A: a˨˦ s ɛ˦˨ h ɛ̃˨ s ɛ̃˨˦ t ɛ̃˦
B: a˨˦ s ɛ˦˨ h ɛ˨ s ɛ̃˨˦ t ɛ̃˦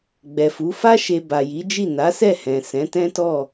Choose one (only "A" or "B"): A